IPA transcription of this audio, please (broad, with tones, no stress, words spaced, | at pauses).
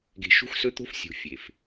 ɡe̤˨ ʃṳ˦xsɵ˦t̪o̤˦f sʲṳ˨ fʲe˨f